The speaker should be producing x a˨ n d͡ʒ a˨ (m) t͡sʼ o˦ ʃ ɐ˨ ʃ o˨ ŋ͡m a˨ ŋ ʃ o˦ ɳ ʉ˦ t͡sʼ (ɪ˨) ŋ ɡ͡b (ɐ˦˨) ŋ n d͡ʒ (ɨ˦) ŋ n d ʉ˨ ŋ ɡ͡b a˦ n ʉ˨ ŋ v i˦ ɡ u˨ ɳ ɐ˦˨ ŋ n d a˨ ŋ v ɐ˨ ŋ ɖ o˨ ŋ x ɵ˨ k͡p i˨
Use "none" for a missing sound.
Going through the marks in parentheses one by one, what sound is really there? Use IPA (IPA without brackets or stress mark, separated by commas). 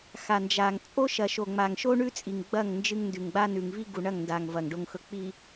ŋ, i˨, ɐ˦˨, ɨ˦